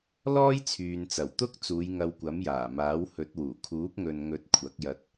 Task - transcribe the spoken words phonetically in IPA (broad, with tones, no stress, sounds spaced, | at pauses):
l ɔː˥ j t͡sʰ yː˨ n t͡s ɐ˨˩ w t̪ ʊ˥ k̚ t͡s uː˨˧ j ŋ ɐ˧ w kʷ ɐ˨˥ m j aː˨˩ m aː˨˥ w h ɵ˨˥ t̚ w uː˨˩ kʰ uː˨˥ p̚ ŋ ɵ˨ n ŋ ɵ˨˥ t̚ kʷʰ ɐ˨˥ k̚ j ɐ˧ t̚